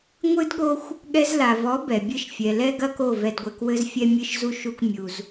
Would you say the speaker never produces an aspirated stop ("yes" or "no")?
yes